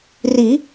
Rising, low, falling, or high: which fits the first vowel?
rising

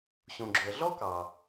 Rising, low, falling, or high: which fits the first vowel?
low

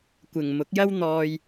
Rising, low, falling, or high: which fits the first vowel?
low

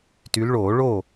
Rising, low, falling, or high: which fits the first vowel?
rising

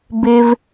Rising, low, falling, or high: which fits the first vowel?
high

